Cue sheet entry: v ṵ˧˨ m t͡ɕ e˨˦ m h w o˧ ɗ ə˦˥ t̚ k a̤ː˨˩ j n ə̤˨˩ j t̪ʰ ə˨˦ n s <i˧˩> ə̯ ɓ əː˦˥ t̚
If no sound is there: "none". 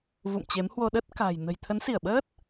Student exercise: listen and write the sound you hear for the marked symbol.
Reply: i˧˩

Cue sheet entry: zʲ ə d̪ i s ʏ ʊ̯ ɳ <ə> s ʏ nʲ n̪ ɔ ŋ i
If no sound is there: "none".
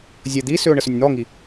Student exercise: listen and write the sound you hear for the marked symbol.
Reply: ə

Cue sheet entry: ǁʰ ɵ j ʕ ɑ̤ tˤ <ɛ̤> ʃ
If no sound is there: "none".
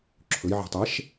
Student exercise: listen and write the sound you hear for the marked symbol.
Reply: ɛ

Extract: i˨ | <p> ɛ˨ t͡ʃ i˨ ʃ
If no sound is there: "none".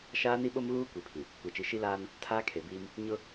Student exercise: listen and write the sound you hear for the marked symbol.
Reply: kʷ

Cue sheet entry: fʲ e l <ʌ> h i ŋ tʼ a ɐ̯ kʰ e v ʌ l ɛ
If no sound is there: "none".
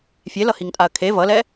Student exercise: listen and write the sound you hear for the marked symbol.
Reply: ʌ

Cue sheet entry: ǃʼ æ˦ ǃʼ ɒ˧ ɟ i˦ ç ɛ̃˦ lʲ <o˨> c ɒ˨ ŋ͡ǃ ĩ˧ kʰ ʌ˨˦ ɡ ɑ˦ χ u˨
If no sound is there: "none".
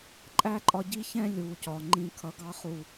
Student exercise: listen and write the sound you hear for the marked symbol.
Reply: u˨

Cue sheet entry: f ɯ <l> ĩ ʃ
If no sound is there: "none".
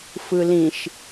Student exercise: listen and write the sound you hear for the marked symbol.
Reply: l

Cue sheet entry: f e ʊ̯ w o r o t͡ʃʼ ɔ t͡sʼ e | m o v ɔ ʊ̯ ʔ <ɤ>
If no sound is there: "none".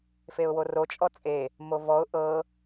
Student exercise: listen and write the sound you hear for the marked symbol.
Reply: ɤ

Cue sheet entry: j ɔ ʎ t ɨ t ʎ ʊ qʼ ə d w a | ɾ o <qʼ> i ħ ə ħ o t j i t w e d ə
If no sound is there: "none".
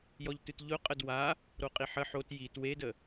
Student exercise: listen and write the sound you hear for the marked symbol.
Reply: qʼ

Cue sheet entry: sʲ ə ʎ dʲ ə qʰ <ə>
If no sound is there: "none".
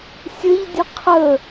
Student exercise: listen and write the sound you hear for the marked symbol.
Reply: ə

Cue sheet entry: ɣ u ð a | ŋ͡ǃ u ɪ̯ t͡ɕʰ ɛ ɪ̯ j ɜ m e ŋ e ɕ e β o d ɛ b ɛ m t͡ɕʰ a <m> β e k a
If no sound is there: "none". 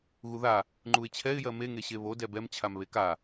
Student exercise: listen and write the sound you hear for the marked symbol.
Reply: m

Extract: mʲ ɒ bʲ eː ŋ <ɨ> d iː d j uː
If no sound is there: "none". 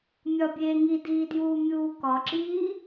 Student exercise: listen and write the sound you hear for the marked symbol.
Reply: i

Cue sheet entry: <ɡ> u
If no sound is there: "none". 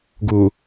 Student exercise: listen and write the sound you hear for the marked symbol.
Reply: ɡ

